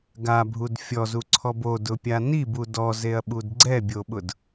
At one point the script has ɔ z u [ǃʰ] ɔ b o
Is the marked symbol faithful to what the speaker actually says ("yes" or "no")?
no